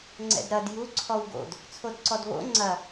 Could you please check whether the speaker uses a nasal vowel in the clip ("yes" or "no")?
no